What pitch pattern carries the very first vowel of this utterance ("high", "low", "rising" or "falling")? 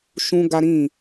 high